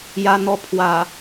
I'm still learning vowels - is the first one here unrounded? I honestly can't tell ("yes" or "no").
yes